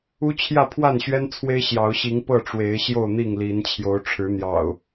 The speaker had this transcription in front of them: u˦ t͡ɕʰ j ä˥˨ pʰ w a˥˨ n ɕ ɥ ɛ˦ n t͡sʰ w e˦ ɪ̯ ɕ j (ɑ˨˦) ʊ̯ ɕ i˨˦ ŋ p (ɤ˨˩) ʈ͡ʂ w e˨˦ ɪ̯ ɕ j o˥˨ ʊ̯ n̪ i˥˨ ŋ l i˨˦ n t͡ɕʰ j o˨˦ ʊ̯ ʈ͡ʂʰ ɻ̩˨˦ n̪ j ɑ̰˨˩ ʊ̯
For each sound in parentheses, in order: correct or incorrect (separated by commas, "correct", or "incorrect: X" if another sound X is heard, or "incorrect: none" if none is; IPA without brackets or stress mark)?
correct, incorrect: ɤ˥˨